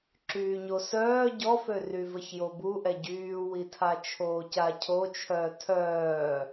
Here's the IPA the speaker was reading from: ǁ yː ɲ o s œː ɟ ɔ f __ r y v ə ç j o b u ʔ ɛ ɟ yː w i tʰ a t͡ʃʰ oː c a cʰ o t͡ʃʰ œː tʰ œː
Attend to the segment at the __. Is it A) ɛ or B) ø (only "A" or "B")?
B